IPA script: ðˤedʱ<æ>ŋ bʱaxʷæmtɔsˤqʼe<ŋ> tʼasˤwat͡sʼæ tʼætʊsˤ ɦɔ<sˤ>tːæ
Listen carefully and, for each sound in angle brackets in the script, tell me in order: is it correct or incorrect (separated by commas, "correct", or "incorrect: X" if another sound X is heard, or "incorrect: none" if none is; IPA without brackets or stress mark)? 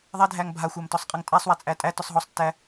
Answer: correct, correct, correct